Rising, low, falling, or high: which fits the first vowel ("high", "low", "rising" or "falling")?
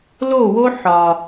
falling